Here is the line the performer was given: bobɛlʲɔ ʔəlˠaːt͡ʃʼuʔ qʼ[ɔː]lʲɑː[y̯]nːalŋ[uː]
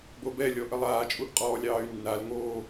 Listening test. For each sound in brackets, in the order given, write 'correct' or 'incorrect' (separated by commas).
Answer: correct, correct, incorrect